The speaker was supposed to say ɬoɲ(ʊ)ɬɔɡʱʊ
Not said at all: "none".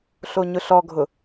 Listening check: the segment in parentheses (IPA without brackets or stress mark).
ʊ